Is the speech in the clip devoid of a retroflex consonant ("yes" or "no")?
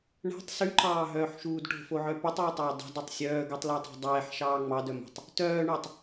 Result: no